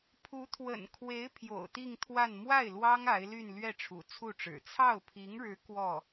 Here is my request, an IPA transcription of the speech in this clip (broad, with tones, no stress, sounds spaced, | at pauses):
pʰ u˧˥ t̪ʰ w ə̰˨˩ n kʰ w e˧˥ ɪ̯ pʰ j o̰˨˩ ʊ̯ t̪ i˥˧ ŋ t̪ʰ w a˥˧ n m w a˥˩ ɪ̯ l w ɑ˥ ŋ a˧˥ ɪ̯ l y˥˧ n l ɥ ɛ˥˩ ʈ͡ʂʰ ṵ˨˩ t͡sʰ u˥˩ ʈ͡ʂ ɻ̩˨˩ t͡sʰ ɑ˥˩ ʊ̯ pʰ i˧˥ ŋ ɻ ɻ̩˧˥ k w ɔ˥˩